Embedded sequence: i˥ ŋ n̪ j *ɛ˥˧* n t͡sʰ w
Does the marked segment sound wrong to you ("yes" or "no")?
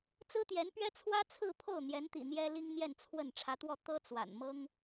no